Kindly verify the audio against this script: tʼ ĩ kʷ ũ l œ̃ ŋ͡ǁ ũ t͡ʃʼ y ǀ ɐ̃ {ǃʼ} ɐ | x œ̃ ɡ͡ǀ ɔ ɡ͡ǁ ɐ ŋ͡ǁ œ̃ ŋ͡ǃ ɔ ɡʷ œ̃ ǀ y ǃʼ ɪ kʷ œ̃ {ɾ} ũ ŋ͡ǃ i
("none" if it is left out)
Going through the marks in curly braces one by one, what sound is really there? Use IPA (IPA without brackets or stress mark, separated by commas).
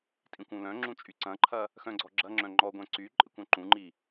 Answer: ǃʰ, ǃ